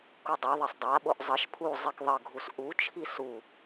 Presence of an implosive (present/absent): present